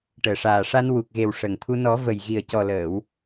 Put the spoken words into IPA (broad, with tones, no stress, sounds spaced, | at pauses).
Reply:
ʈ əː˨˩ ʂ aː˨˩ ʂ a˧ n w u˨˩ k̚ ɣ e˨˩ w ʂ ə˨˩ ŋ t̪ʰ u˧ n ɔ˨˩˦ v ə˨˩ j ɣ i˨˩ ə̯ c ɔ˨˩ l əː˨˩˨ w